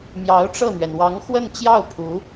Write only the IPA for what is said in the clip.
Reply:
mjɑ˧˥ʊ̯ʈ͡ʂɤ˥˩n̪ɥɛ˩n wɑ˧˥ŋ xwə˥˧nt͡ɕjɑ˥˩ʊ̯ pʰu˧˥

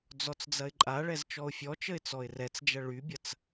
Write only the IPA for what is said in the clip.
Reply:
d͡zɔt͡sd͡zɐɪ̯ǃʼaɭɛz t͡ʃɔʊ̯fʲɔt͡ʃəɪ̯ t͡sɔɪ̯rɛt͡sd͡ʒɐ ɭybʲɐt͡s

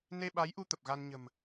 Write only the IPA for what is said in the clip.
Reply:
ne˧ɓa˨˦jʔu˧ t̪ə˨˩p̚ɣa˧nɲə̤˨˩m

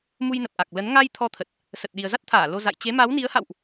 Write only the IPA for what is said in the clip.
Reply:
mu˧jnə˨˩p̚ʔa˨˩k̚lə˨˦n ŋa˧j t̪ʰɔ˧t̪ʰə˨˩t̚ | sə˨˩t̚ɗi˨˩ə̯za˦˥t̚t̪ʰaː˧˩ lo˧za̰˧˨j t͡ɕe˨˦ma˨˦wni˨˦ə̯ha̰˧˨wʔ

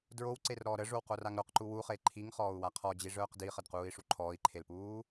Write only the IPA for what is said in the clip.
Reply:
dɹowǀerɾɔː ɾəʐowqoraŋ ɾoqǃu wuχe ǃʰiŋχɔːu̯wa qʰɔd͡ʑiʐœːq diχədquːi̯ʂu ǃʰɔːi̯ǃʰelpuː

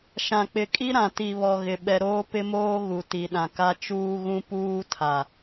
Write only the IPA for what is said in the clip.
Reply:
ʃã˨k͡pɪ˨kʼi˦ ɾã˨ti˨βɔ˨ ɣɪ˨ ɓɛ˨ɾoː˦ pɪ˦moː˦ɣu˨ ti˨ɗã˨ka˦ t͡ʃuː˦ɣũ˦ puː˦tʰa˨

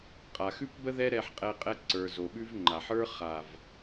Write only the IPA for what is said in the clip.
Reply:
qʼa˨xʉ˦pbə˦ ðɛ˦ɾɛ˧ħqʼɛ˧ qʼɛ˧ǀə˞˨ zo˨ɓʉ˦v ŋ͡ǃa˨ħ ə˞˦ χa˨v

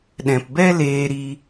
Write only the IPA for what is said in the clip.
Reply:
ɗɛ̃˨pbɛ˦ leː˧ɾi˧

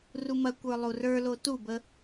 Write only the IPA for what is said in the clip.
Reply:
rumɐkʷə˞ lˠurə˞lo tubə

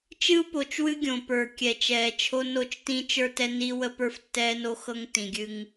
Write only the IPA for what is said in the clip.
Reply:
t͡ʃɨ˦u̯po˨t͡ʃwɨ˦ ɡʲõ˨pə˞˨ kʲɛ˨t͡ʃɛː˨t͡ʃʰo˦ no˦˨t͡ʃtĩː˦t͡ʃ ə˞˦tɛ˦ ni˦ wə˦pə˞˦ftːɛː˦no˦ xɤ˦ŋ tĩ˨ɡʲɨ˦ŋ

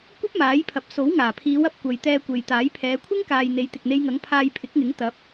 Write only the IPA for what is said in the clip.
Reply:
kʷɐ˥p̚maː˨˥jpʰɐ˨p̚ so˨˥wŋaː˨˩pʰiː˨˧wɐ˨p̚ kʷɐ˨j t̪ɛː˧kʷe˨jt̪aː˨˥j pʰɛː˨˧kʷʰɪ˥ŋkaː˨j n̪e˨˥jt̪ɪ˨k̚n̪e˧jŋɐ˨˥ŋ pʰaː˧jpʰɪ˨˥k̚ŋɪ˨˥ŋ t̪ɐ˨˥p̚

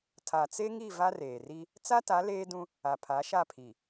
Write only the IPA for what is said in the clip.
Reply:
tʰa˨t͡se˦ŋi˦˨ va˦reː˨ri˦ | t͡sa˦ta˨˦ leː˦dũ˦ | a˨pʰa˨˦ʃa˦˨pʰi˨

